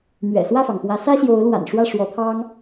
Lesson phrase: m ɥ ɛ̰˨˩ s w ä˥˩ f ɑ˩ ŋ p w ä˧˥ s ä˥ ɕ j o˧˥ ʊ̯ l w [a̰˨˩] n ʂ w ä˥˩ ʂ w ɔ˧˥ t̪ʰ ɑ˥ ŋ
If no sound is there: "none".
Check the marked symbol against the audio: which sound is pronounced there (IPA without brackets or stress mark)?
a̰˨˩